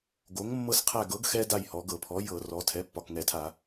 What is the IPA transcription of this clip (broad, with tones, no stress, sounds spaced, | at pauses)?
ɡ o˩˥ ŋ mː ɤ˦ s qʰ æ˦˨ ɡ ɤ˩˥ ɡ x ɛ˦ d a˦˨ j h ɔ˩˧ ɡ ɤ˧˩˧ pʰ ɔ˩˥ j ɤ˧˩˧ r ɔ˩˧ tʰ ɛ˩˥ pː ɒ˨˩ k ŋ ɛ˧˩˧ tʰ a˧˩˧